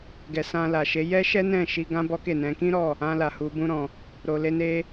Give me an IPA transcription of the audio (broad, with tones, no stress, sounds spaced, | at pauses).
ɡ ɛ˨ s ã˧ l a˨ ʃ e˨˦ j ɛ˦ ʃ ɛ˦ n ɛ̃˦˨ ʃ i˧ ɡ ã˦ b ɔ˦ k e˦˨ n ɛ̃˧ k ĩ˦ ɾ ɔ˦˨ | ã˧ l a˨ h u˨ b ũ˧ ɾ ɔ̃˨ | ɾ o˨ l e˧ n e˧